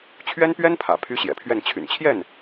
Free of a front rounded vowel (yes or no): no